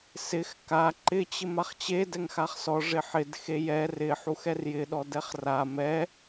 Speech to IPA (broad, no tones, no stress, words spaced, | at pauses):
sɪx ka ǃɪt͡ɕɪ maχt͡ɕe dɛŋxaχsɔ ʐɪħɪd xejɛ rɪħu xɛrjɪɗɔ dɛχra mɛ